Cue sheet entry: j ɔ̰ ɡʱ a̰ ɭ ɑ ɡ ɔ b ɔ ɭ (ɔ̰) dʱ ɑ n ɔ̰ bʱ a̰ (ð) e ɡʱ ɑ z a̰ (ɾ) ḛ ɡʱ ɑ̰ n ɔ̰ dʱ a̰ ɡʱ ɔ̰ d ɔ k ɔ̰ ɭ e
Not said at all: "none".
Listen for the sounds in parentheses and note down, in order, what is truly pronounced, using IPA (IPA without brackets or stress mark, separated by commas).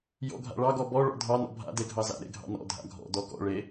ɔ̰, d, ɾ